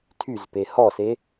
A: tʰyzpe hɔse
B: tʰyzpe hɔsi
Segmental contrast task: A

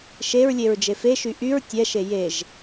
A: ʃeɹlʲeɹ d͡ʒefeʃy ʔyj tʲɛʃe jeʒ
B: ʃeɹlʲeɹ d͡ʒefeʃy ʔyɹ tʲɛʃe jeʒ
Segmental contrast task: B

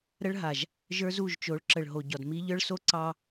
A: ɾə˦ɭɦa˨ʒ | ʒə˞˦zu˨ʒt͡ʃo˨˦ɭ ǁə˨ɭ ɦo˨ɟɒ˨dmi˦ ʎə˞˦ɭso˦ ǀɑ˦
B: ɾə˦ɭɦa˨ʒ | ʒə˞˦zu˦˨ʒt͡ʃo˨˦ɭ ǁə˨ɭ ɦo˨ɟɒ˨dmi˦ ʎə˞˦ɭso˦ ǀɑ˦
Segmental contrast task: B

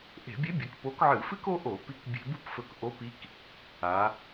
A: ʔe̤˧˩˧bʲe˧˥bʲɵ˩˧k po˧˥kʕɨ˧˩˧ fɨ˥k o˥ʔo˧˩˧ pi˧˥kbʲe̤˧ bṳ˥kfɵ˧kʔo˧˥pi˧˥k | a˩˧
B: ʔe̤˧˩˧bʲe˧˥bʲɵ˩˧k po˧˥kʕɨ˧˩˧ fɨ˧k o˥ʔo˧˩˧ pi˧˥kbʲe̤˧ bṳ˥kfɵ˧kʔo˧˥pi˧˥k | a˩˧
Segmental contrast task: A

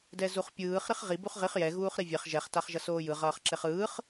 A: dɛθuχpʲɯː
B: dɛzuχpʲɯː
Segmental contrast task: B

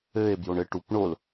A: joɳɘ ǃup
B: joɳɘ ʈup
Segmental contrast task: B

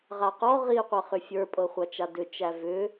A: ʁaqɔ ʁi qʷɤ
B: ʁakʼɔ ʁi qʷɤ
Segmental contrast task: A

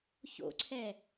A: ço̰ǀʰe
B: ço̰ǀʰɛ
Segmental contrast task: B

